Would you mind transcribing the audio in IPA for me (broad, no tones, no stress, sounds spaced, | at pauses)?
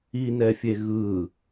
i n ɛ fʲ e ɣ ɯ